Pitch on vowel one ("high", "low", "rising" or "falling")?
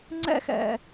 high